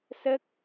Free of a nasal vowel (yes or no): yes